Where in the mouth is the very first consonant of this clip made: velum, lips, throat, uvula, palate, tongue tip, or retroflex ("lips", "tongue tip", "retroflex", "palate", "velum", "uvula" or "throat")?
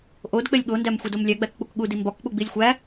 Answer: throat